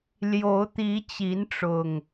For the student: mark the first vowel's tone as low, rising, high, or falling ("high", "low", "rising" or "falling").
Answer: rising